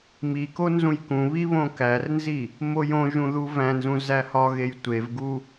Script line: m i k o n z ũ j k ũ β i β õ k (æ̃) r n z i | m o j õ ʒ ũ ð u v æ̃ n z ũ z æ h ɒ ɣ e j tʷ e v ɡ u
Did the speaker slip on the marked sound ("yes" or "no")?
yes